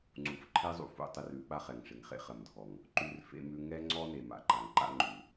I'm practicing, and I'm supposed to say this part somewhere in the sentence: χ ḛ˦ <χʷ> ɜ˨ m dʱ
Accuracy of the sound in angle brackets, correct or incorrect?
incorrect